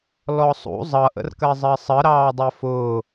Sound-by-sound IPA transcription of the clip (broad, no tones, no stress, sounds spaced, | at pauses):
l ɔ sˤ ṵ zˤ ʌ ʔ ə̰ r k ɜ zˤ ɜ sˤ ə ɾ ɑː dˤ ɛ f ʊː